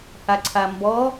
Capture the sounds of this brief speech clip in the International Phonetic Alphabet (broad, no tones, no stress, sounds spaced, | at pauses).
h a ǀʰ a m b ɔ